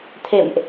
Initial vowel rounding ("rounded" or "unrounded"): unrounded